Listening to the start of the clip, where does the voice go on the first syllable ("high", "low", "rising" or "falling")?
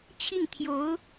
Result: falling